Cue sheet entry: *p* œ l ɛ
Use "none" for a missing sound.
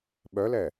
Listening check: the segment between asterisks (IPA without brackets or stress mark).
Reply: ɓ